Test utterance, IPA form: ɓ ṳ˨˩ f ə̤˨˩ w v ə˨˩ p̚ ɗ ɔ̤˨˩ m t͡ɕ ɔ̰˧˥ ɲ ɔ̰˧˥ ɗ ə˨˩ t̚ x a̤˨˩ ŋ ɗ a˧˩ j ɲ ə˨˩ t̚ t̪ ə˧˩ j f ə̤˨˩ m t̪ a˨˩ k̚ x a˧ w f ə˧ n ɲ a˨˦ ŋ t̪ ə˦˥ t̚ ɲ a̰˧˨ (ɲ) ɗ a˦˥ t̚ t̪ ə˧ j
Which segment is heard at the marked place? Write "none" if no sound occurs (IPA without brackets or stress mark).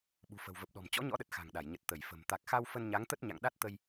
ŋ